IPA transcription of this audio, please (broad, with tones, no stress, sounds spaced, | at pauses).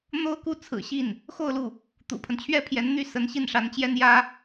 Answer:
n̪ o˥ ʊ̯ k u˥˩ t͡sʰ ɹ̩˨˩ ɕ i˥˩ n | x o˥˧ ʊ̯ l u˥˩ | t̪ ṵ˨˩ pʰ ə˦ n t͡ɕʰ ɥ ɛ˥ pʰ j ɛ˧˥ n n̪ y˥˩ s ə˧˥ n ɕ i˥˩ n ʂ a˧˥ n t͡ɕ j ɛ˥ n j ä˥